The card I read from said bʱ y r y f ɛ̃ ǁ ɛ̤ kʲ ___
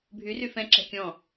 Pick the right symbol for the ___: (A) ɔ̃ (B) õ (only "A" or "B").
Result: A